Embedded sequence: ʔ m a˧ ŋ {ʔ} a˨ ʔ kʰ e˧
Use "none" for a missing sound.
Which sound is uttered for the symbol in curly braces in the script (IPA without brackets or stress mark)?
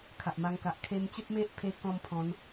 k